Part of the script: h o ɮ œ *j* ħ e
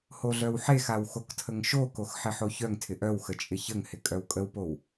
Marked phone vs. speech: incorrect: w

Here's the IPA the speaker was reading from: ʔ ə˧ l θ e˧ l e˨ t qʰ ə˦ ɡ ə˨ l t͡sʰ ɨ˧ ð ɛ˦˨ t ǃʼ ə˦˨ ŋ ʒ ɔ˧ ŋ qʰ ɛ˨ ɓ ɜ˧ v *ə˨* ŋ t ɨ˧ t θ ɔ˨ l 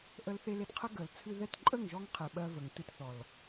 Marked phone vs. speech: correct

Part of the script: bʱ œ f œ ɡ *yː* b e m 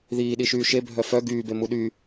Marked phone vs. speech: correct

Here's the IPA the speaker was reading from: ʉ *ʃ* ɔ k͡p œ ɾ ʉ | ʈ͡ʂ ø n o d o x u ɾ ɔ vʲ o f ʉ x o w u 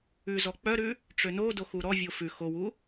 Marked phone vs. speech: incorrect: z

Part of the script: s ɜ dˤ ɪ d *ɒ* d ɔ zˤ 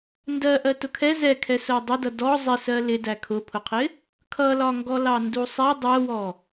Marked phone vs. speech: incorrect: ʌ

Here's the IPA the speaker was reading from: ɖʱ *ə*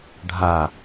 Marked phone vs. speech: incorrect: a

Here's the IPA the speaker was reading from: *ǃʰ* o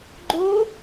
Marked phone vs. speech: incorrect: ɡ͡ǃ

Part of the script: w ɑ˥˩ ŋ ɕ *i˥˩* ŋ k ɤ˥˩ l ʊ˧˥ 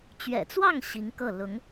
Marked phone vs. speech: incorrect: i˧˥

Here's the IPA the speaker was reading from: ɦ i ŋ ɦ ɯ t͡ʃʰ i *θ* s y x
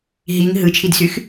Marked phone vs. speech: incorrect: d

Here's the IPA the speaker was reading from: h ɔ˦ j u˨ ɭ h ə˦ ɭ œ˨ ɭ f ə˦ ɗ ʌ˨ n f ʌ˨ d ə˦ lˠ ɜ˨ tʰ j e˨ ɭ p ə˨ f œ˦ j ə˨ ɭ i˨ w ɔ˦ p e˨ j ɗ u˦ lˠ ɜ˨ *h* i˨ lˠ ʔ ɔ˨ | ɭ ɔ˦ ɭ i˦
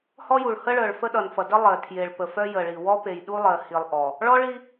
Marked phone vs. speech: correct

